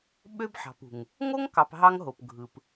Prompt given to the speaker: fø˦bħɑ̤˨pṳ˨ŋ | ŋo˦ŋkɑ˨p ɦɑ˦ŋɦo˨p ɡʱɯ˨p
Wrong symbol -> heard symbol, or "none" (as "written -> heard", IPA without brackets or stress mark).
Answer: f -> ɓ